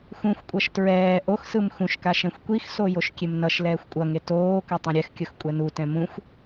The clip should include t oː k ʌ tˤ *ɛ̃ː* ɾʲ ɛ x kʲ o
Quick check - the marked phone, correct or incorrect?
incorrect